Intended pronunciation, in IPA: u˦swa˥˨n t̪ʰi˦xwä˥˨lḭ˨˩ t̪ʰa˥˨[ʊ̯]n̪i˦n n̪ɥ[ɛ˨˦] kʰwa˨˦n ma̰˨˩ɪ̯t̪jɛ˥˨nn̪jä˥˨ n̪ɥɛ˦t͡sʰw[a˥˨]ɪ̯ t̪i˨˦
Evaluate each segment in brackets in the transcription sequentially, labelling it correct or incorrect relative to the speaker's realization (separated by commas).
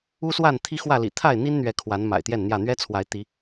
incorrect, correct, incorrect